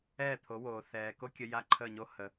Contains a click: yes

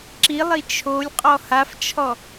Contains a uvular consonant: yes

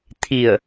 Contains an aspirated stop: yes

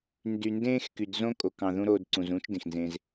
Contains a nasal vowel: yes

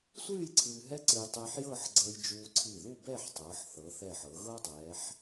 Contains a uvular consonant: no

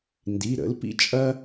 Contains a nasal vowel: no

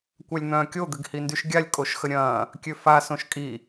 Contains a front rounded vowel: yes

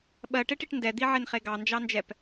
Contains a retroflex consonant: yes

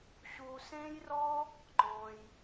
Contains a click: yes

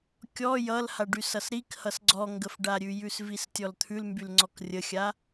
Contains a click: yes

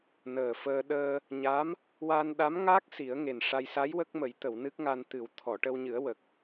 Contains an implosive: yes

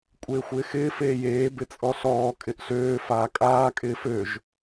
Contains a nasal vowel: no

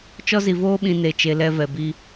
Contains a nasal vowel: yes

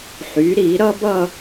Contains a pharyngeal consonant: yes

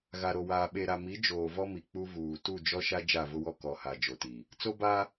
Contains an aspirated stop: no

